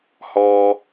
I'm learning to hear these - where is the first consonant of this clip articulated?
throat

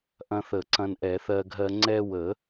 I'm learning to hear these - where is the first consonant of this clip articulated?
throat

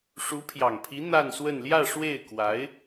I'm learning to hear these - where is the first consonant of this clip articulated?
retroflex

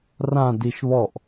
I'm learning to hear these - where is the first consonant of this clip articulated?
tongue tip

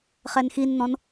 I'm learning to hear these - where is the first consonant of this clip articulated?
uvula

